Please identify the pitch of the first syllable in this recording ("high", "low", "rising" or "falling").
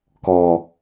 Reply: high